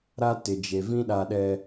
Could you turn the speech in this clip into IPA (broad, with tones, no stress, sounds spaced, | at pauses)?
ɾ a˦ t ɪ˨ d͡ʒ e˨ v ĩ˦ ɗ a˨ ɗ ɛ˨